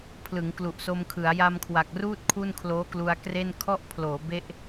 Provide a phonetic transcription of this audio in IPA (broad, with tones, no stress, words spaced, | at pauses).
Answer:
pʰlɯ˩˦ŋ klu˨˩ʔso˧mkʰɯ˩˦a̯ ja˧mkʰwa˨˩k̚ruː˥˩t̚ kʰu˥˩nkʰloː˦˥klu˧a̯kre˥˩n kʰɔ˥˩ʔpʰloː˩˦ be˥˩ʔ